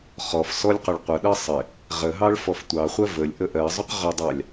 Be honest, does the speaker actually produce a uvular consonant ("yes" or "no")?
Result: yes